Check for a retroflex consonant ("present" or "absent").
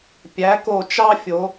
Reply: absent